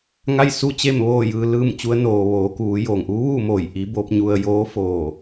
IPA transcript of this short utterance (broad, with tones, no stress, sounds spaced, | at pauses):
ŋ a˥˨ j s u˥˨ t͡ɕ e˥˨ m ʋ oː˥˨ j ɯː˧ l ɯː˥˨ m t͡ɕ u˧˥ ə̯ n oː˩ ʋ oː˩˧ k uː˩˧ j oː˩ ŋ ʔ uː˧˥ ʋ uː˥˨ m oː˧˩ j ʔ i˧˥ b oː˧˥ p̚ ɲ u˧ ə̯ j oː˧˥ f oː˧˩